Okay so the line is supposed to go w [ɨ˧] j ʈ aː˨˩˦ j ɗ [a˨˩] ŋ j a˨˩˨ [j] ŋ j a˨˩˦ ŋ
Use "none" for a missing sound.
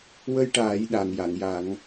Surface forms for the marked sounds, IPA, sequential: ə˧, a˨˩, none

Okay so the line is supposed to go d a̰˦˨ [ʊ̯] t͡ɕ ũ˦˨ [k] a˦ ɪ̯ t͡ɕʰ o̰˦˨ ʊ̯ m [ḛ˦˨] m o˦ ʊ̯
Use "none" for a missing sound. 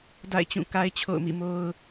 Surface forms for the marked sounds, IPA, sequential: ɪ̯, k, ḭ˦˨

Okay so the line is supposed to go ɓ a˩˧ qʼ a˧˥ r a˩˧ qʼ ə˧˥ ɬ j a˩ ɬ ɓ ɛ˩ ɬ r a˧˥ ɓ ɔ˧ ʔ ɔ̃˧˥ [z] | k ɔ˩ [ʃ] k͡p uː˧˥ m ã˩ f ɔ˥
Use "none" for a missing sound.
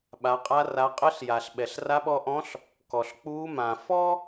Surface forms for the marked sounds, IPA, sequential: ɬ, ɬ

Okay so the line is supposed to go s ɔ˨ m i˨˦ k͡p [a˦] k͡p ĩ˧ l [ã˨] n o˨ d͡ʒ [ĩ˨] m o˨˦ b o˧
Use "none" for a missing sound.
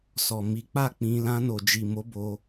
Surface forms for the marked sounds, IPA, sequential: a˦˨, ã˧, i˨

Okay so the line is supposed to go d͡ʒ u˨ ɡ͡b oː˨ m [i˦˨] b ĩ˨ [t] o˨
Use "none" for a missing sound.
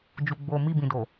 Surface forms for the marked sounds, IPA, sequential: i˦˨, d

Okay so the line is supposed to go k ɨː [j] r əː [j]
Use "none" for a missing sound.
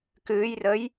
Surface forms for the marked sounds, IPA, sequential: j, j

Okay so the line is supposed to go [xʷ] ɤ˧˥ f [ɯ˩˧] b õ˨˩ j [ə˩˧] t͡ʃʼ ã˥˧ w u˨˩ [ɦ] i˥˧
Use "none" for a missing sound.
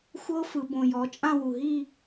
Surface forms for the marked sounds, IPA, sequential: xʷ, ɯ˩˧, ɔ˩˧, ɦ

